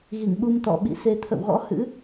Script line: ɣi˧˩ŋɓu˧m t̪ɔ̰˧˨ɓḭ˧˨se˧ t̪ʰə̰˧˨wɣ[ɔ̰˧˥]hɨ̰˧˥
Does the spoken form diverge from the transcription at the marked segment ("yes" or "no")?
no